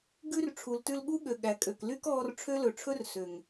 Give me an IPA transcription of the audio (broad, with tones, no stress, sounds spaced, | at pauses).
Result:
ɡ ʉ˦ r ʈ͡ʂʰ u˨ l t ʉ˧ l ɠ u˦ ɠ ø˨ ɠ æ˨ kʼ ø˨ k l y˦ k ɔː˧ r ʈ͡ʂʰ ø˦ l ɵ˨ ʈ͡ʂʰ ɵ˧ r s ø˨ ŋ